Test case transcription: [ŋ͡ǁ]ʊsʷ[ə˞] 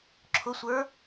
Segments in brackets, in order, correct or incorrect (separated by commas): incorrect, correct